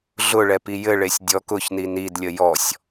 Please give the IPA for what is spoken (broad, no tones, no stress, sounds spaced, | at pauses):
ɮ ʊ ɭ ɛ p i j ɘ ɭ e sʲ dʲ ɔ k ʊ ç n i n i d lʲ ə j ɔ sʲ